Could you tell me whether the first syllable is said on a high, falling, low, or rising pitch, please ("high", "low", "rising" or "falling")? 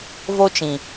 high